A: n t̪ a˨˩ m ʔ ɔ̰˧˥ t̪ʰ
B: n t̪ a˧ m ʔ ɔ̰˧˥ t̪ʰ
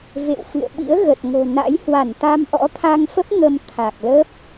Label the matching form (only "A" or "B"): B